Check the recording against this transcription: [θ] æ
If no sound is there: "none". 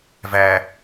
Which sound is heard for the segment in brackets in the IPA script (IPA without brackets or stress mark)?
v